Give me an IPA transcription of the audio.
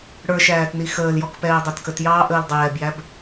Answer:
ɽə˞ʃæːtni xəːljɔkpɛː dˤætkətjɑː ʔəːldˤɛːbjæb

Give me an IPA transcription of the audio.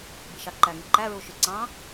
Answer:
biʃɑǃæŋi ǃæɹuʃy ǀɑ̃

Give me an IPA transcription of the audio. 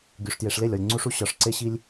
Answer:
ɡʲu˨ʂtje˨ʂ le˦˨lʲɒ˨lʲ ŋ͡ǀu˦ʂu˦ ɕɒ˨ʂ ǀe˦ɕi˦lʲ

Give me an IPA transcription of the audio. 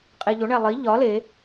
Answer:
qʼeʎo ɳælˠi ʎɒ le

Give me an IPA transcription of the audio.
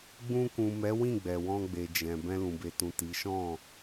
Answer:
ɡ͡bũ˧kũ˨mɛ˨˦ wĩ˦˨ɡ͡bɛ˨wɔ̃˧ɡ͡be˨ d͡ʒɛ̃˨ bɛ̃˧lũ˨be˨tũ˨ ti˨˦ ʃɔ̃˦˨

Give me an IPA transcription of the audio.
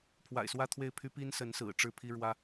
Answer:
pʰwa̰˨˩ɪ̯swä˥˧t̪ʰwe˥˩ɪ̯pʰy˥ pi˥nsə˧˥nsɹ̩˨˩ ʈ͡ʂɻ̩˥˩pʰi˥ ɻwä˥

